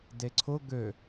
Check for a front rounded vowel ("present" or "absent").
present